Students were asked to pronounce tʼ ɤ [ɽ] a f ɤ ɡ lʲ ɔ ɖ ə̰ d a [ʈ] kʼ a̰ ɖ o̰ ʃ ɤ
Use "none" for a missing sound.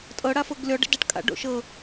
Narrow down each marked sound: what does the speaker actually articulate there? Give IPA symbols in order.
ɽ, ʈ

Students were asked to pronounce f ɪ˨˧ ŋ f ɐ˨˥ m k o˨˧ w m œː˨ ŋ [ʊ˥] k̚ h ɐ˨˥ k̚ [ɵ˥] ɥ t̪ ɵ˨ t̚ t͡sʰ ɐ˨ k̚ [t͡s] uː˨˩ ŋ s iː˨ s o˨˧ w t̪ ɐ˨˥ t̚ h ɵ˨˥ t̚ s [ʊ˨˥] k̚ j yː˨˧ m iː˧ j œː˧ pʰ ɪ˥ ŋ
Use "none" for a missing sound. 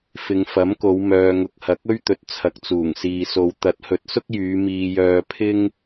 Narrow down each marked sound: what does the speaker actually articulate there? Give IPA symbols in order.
ʊ˨, ɵ˥, t͡s, ʊ˥

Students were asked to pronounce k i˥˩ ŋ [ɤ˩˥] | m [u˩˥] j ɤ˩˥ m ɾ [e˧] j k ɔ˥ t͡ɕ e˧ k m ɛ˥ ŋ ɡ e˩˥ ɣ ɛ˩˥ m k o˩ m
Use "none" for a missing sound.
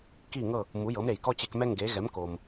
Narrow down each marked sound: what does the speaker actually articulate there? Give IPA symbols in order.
ɤ˥˩, u˩˥, e˩

